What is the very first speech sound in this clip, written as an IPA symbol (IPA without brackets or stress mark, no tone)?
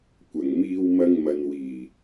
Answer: kʷ